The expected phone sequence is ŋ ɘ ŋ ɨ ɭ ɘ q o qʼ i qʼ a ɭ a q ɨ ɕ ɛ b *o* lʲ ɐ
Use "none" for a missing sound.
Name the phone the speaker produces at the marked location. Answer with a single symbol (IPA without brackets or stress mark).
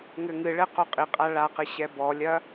ɔ